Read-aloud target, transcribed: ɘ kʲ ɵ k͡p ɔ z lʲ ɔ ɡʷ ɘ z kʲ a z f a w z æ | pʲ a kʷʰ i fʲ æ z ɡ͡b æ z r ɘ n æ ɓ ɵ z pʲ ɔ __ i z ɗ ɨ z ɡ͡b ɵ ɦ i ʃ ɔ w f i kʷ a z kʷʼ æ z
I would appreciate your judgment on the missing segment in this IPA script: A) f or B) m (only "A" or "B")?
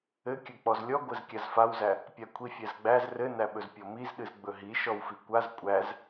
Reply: B